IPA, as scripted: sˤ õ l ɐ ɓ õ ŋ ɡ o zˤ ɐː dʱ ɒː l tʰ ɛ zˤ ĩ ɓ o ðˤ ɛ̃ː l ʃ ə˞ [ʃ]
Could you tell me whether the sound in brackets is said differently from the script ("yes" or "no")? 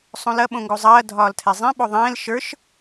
no